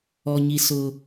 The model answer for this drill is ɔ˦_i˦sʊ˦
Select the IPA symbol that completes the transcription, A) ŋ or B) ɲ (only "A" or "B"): B